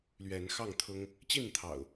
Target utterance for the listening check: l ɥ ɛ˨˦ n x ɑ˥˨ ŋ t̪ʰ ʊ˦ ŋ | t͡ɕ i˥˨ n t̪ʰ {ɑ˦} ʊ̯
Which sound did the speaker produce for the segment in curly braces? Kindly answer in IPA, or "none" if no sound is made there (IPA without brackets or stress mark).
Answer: ɑ̰˨˩